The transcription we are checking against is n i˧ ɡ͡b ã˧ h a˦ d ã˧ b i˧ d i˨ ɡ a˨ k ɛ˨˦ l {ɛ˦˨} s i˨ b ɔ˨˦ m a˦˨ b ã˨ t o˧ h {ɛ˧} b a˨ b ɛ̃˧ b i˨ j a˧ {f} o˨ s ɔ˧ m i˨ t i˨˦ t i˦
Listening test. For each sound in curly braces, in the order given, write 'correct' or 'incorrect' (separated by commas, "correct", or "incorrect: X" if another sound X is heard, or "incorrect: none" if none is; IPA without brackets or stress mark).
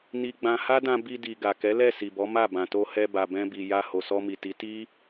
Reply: correct, correct, incorrect: h